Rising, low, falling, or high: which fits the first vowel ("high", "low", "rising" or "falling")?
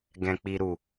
low